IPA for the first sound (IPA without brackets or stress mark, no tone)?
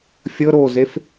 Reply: fʲ